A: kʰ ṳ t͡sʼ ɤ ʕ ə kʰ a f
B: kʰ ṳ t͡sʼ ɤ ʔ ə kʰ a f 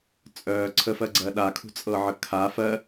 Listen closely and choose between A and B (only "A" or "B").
A